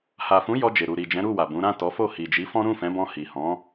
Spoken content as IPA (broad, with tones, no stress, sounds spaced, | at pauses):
h a˨ f ũ˨˦ j ɔ˧ d͡ʒ e˨ ɾ u˨ ɾ i˨ d͡ʒ ɛ̃˨˦ ɾ u˦˨ w a˨ b ũ˨˦ ɾ ã˦˨ t ɔ˨˦ f o˦˨ h i˨ d͡ʒ i˨˦ f ɔ̃˦ ɾ ũ˦˨ f ɛ̃˨˦ b ɔ̃˧ h i˨ h ɔ̃˨˦